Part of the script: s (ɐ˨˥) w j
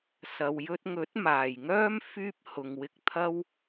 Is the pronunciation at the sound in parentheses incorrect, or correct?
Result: incorrect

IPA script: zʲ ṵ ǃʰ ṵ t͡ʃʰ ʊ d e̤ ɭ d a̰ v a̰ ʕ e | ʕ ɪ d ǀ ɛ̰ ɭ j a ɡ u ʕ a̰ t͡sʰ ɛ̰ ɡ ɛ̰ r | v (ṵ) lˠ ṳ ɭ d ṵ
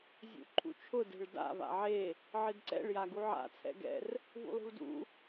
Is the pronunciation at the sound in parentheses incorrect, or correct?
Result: correct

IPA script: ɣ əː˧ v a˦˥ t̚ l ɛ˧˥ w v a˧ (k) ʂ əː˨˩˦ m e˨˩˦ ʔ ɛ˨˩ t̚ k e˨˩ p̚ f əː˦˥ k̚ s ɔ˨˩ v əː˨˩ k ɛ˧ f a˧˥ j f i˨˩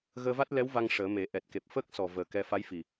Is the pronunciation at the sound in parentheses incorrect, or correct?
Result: incorrect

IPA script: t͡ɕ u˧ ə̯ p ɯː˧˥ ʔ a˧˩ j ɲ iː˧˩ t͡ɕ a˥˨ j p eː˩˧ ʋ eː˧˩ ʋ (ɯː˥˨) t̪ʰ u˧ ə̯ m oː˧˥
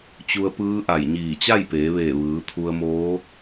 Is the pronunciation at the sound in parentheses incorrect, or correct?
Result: incorrect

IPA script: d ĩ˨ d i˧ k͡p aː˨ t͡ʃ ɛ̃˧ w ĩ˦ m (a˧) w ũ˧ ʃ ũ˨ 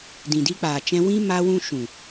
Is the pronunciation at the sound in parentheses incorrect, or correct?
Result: correct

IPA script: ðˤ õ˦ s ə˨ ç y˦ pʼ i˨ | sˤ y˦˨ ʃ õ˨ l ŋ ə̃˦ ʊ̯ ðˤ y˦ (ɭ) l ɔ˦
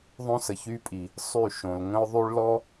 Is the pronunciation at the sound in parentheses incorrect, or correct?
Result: correct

